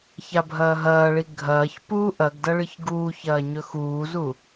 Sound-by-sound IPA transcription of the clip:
ç a bʱ ɐː ɦ ɐː ɭ i ɡʱ ɐː ç p uː ʔ ɐ ɡ d ɐ ɭ ɨ ç ɡ uː ç ɐː ɲ ɵ x uː z u

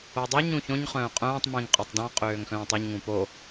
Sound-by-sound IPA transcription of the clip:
o dˤ ø ɲ ũ ç õ ɲ χ œ̃ː qʼ œ̃ː tˤ m ĩ ŋ qʼ ɔ tˤ d ɔ̃ qʼ øː ŋ x œ̃ː tˤ y ɲ ŋ ũ p o

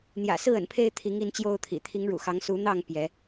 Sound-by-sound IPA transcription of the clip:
n̪ j ä̰˨˩ s ɹ̩˥˨ ə̰˨˩ n pʰ e˦ ɪ̯ t̪ʰ i˨˦ ŋ i˦ n t͡ɕ j o˦ ʊ̯ t̪ʰ ḭ˨˩ t̪ʰ i˨˦ ŋ ɻ ṵ˨˩ x ɑ˨˦ ŋ s u˨˦ n̪ ɑ˥˨ ŋ p j ɛ˨˦

